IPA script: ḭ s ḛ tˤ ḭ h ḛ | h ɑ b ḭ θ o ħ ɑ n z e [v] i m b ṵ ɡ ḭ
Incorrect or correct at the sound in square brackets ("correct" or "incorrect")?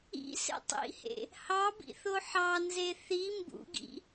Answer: incorrect